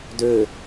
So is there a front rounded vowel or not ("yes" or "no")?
yes